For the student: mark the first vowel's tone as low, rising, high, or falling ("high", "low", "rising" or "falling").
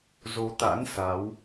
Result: rising